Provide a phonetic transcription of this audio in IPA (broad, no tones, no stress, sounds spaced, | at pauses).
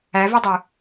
æ v i dˤ u